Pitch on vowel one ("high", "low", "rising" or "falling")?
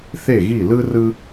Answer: falling